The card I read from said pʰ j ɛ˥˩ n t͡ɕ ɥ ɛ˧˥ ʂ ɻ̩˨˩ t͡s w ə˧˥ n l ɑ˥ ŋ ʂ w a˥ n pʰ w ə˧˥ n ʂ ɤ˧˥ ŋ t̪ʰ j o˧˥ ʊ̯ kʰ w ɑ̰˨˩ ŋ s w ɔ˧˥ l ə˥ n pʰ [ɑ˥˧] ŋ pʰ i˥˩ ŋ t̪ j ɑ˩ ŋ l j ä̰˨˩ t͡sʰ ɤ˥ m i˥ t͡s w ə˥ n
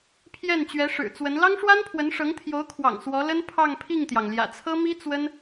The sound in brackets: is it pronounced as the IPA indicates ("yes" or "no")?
yes